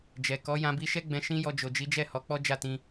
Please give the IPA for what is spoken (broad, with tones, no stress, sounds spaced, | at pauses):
d͡ʒ ɛ˨ k ɔ˨˦ j ã˧ b i˧ ʃ ɛ˦ ɡ͡b ɛ̃˧ ʃ ĩ˦ j ɔ˧ d͡ʒ o˨ d͡ʒ i˨˦ d͡ʒ ɛ˦˨ h ɔ˨˦ k͡p ɔ˦ d͡ʒ a˦˨ t ĩ˧